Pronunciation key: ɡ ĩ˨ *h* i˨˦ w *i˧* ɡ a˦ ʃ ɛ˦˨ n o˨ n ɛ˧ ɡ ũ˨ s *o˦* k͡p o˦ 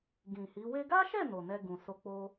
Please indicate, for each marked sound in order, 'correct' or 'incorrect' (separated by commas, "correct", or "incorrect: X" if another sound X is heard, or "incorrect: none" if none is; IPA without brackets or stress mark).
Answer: correct, incorrect: e˧, incorrect: o˧